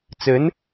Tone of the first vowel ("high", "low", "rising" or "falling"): rising